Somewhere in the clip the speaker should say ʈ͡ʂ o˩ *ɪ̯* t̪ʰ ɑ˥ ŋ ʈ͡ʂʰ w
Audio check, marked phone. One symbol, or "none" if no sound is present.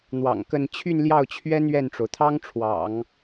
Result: ʊ̯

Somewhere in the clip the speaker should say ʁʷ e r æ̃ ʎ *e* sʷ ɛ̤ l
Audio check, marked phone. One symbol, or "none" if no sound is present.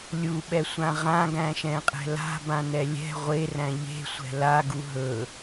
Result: e̤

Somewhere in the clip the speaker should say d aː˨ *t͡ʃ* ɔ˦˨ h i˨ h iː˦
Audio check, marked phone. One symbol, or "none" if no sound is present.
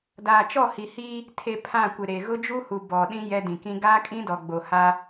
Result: t͡ʃ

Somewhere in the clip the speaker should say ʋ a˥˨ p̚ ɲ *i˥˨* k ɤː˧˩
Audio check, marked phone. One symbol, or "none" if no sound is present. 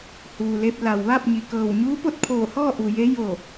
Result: i˩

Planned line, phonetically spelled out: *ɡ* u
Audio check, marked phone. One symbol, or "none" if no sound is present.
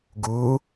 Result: ɡ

